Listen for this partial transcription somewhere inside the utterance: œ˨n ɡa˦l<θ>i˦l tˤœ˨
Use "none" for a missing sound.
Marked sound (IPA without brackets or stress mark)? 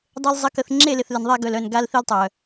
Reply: θ